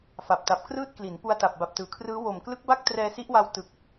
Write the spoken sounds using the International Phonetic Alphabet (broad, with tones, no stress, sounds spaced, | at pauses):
f a˨˩ p̚ t a˨˩ p̚ k r ɯː˥˩ t̚ k l i˩˦ n p u˧ a̯ t a˨˩ p̚ b a˨˩ p̚ t ɯː˩˦ kʰ r ɯː˦˥ w o˨˩ m k l ɯ˦˥ k̚ b a˥˩ k̚ t r ɛː˧ s i˦˥ ʔ w a˧ w t ɯ˨˩ k̚